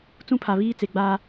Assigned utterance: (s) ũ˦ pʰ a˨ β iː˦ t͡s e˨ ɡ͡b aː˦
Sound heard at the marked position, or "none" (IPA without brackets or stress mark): t͡s